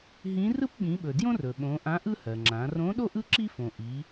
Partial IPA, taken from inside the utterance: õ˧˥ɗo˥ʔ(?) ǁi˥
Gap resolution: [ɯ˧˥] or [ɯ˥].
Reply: ɯ˥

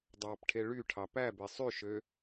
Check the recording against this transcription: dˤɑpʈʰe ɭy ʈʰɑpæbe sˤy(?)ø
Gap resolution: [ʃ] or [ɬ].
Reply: ʃ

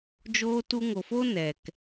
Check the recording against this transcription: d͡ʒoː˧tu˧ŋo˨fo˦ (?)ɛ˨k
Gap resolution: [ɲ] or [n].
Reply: n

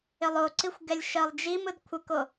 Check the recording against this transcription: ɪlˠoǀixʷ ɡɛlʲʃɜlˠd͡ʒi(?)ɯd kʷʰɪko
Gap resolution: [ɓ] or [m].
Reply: m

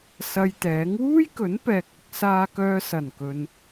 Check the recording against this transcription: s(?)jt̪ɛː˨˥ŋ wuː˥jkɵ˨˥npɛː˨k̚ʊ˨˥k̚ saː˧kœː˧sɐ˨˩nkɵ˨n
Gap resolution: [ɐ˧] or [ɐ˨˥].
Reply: ɐ˧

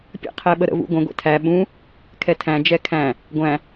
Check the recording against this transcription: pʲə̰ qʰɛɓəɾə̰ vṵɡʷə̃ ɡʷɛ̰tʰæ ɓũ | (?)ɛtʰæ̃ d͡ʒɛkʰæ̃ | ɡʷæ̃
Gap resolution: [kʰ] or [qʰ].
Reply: kʰ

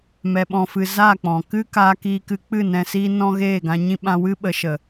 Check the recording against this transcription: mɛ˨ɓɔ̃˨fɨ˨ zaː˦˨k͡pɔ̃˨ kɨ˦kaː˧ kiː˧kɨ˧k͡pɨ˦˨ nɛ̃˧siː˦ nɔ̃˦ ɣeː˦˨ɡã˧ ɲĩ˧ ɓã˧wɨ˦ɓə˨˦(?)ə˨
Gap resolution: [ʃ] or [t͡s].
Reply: ʃ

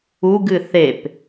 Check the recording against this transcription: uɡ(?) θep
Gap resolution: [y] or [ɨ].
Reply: ɨ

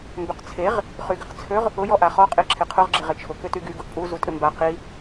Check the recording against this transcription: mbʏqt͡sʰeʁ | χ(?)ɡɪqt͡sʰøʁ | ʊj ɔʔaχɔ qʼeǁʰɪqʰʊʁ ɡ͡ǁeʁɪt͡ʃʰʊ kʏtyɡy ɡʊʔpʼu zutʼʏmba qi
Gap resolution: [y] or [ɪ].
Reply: y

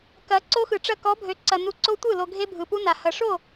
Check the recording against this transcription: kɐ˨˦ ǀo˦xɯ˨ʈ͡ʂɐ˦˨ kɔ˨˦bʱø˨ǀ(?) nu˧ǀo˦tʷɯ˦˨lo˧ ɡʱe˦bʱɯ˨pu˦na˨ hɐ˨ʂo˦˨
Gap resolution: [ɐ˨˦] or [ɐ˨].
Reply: ɐ˨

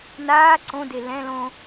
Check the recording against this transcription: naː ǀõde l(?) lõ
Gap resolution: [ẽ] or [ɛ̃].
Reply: ɛ̃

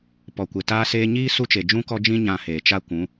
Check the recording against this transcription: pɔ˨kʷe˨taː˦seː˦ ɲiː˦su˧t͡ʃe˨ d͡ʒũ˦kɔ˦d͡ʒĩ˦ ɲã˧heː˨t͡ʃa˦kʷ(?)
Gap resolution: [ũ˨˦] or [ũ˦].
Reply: ũ˨˦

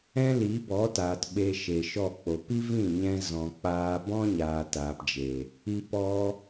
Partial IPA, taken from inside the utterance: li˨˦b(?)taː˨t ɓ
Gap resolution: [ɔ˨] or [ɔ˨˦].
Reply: ɔ˨˦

